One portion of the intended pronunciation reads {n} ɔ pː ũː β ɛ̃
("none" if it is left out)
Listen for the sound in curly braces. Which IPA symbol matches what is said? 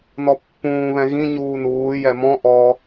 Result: n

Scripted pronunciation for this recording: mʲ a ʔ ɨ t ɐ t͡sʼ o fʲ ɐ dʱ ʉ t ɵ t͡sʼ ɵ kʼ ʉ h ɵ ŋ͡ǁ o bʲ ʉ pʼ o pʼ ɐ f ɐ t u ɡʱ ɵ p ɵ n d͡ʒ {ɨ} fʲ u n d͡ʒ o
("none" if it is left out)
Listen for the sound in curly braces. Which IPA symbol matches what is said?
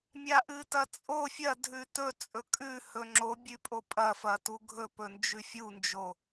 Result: ʉ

